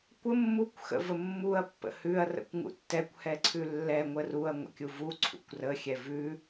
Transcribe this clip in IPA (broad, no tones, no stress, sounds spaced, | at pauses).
kʷ ə mː u kʷ x ə̰ v ə mː u ɐ̯ pː ə̰ h ʉ ɐ̯ r ə̰ kʷ ŋ ṵ tː ɛ kʷ h ɛ ǀʰ ʉ lː ɛ ŋʷ ə r u ɐ̯ ŋʷ ə̰ kʲ u v u ǀʰ ṵ kʷ r ə xʲ ɛ v ʉ